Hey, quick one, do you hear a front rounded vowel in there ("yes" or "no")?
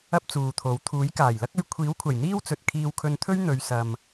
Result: no